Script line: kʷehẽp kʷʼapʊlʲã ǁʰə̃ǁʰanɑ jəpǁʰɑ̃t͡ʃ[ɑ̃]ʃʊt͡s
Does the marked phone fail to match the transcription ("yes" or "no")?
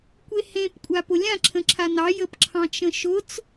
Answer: yes